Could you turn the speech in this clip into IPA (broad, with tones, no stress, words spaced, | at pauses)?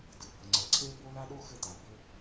dɯ˩bə˩ŋ͡ǀə˩ ǀʰe˥bo˥ la˥ɗo˥ xɘ˥ta˩bɘ˥